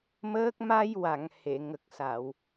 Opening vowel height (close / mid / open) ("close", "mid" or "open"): mid